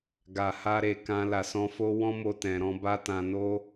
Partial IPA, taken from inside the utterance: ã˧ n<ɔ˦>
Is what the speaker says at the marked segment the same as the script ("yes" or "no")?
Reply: no